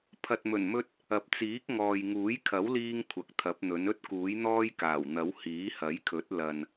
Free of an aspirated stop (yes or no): no